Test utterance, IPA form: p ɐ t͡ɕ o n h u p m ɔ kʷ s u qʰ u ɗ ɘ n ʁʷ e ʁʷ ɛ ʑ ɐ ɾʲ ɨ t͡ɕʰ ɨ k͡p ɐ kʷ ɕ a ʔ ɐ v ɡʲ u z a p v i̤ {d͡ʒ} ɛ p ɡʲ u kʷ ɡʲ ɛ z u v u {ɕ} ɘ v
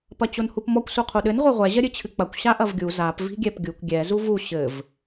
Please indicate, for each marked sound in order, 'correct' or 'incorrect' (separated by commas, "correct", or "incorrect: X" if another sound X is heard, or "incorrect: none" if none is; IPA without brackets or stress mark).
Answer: incorrect: ɡʲ, correct